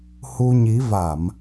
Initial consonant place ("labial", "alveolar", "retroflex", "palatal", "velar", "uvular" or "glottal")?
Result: glottal